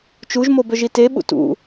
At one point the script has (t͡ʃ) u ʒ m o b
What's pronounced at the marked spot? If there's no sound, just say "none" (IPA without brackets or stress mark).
t͡ʃ